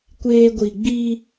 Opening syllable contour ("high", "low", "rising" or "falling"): high